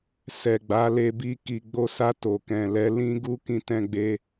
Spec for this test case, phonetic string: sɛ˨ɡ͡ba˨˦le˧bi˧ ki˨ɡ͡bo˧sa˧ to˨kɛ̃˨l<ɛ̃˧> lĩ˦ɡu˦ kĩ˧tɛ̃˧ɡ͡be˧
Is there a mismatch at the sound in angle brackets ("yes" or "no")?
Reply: yes